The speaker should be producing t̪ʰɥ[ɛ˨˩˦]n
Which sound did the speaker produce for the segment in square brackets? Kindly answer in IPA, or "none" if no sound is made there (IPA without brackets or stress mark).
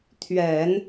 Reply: ɛ˨˩˦